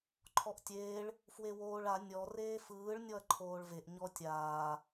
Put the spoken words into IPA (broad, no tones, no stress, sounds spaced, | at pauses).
ǃʰ ɔ ʔ tʲ eː ɭ | f w e w oː ɭ a nʲ ɔ r eː f ɯː ɭ nʲ ɔ ɐ̯ ǃʰ oː ɭ v e ʔ ɲ ɔ tʲ aː